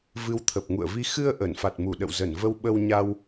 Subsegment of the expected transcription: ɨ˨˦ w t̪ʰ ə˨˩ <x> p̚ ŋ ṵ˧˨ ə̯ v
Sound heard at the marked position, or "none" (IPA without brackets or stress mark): none